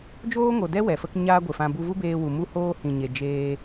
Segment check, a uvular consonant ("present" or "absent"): absent